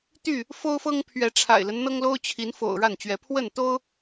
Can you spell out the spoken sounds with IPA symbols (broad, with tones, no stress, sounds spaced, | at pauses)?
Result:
t̪ y˥˨ | f o˦ ʊ̯ f ɤ˦ ŋ pʰ ɥ ɛ˨˦ ʈ͡ʂʰ a̰˨˩ ɪ̯ l ə˦ n n̪ ɤ˦ ŋ l o˦ ʊ̯ t͡ɕʰ i˨˦ n f o̰˨˩ ʊ̯ ɻ a˥˨ n t͡ɕ ɥ ɛ˨˦ pʰ w ə˥˨ n t̪ o˦ ʊ̯